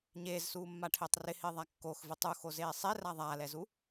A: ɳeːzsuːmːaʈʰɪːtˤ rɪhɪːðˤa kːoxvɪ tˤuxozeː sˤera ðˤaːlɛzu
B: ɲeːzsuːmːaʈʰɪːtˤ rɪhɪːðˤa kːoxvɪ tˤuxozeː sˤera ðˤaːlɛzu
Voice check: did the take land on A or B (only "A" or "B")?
B